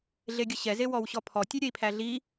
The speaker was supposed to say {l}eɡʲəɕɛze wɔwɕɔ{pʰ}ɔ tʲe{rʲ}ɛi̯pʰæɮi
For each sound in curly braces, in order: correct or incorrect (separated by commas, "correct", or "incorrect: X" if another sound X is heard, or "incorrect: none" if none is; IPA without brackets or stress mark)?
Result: incorrect: ɮ, correct, incorrect: ɾʲ